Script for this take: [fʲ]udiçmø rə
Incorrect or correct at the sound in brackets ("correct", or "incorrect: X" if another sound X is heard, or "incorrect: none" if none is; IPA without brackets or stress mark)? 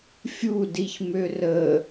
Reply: correct